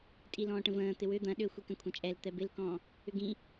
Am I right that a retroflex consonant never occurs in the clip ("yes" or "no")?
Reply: no